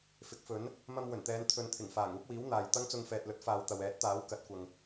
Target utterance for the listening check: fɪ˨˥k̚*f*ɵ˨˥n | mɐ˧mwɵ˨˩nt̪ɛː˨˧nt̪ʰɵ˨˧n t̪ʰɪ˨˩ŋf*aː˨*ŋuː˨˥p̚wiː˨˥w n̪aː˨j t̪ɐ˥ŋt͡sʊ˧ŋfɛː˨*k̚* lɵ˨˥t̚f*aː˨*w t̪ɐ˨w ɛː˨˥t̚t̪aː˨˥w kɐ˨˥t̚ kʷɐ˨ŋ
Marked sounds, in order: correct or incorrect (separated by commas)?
correct, incorrect, incorrect, incorrect